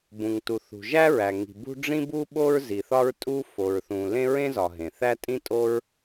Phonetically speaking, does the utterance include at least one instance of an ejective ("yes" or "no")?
yes